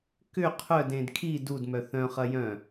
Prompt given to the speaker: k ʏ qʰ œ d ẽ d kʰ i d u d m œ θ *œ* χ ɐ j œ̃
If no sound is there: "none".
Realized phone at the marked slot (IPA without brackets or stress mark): œ̃